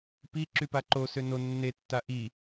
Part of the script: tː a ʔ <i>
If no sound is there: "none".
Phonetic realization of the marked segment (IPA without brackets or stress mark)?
i